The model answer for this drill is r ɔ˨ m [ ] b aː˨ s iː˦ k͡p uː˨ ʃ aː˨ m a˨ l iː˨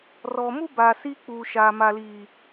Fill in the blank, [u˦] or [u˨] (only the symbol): u˦